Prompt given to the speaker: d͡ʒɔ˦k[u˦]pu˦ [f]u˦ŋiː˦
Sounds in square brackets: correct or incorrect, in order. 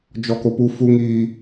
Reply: incorrect, correct

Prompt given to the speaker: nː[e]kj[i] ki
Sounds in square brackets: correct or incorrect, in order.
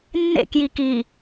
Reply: incorrect, correct

